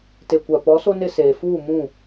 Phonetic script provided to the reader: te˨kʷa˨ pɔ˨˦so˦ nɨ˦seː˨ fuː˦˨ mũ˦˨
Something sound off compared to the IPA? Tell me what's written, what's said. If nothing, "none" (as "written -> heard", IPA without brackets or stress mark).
ɨ˦ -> ɪ˦